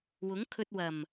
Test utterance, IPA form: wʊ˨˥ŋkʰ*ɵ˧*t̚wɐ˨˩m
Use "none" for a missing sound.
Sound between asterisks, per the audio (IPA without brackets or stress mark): ɵ˧